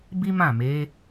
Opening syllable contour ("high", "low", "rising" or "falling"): high